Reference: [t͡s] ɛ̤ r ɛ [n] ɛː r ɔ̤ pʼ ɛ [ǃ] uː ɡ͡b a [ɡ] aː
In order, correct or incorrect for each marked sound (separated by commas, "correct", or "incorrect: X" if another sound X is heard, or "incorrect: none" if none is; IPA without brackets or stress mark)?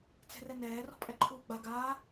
correct, correct, incorrect: ǃʰ, correct